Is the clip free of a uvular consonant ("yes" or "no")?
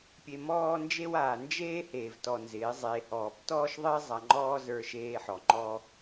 yes